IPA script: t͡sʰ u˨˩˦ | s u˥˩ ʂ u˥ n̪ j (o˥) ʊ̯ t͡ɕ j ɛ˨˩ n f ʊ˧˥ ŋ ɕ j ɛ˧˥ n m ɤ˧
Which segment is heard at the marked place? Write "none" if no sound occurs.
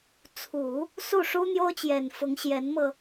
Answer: o˥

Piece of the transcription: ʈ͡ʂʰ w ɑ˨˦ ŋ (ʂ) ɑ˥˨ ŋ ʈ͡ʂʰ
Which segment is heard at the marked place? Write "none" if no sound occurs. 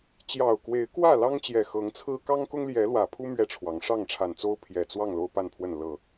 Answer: ʂ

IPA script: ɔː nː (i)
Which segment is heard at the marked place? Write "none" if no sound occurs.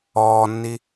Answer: i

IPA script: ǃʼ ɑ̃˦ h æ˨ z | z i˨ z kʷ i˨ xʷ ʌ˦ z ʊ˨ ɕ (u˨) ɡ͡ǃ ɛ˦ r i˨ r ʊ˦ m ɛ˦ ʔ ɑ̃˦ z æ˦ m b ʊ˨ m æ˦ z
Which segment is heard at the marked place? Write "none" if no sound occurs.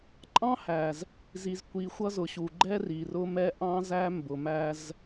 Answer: u˨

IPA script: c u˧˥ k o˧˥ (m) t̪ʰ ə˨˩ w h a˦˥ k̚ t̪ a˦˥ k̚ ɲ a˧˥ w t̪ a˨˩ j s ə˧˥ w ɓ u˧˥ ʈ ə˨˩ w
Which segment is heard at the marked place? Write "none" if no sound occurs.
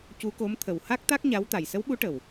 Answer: m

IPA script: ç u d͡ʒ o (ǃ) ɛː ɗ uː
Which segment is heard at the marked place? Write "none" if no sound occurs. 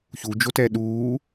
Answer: t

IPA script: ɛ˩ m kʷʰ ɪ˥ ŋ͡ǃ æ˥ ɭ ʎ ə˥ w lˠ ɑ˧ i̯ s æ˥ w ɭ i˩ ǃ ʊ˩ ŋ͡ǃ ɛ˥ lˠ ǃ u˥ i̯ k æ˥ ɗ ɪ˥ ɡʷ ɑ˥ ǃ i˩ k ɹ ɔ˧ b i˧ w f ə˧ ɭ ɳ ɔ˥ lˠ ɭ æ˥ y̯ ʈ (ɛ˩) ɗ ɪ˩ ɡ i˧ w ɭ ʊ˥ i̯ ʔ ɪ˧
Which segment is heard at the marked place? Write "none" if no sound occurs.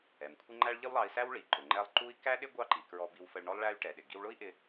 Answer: ɛ˩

